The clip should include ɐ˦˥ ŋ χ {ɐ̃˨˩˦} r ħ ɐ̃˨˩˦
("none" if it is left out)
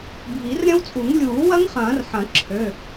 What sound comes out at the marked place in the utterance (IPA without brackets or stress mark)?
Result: ɐ̃ː˨˩˦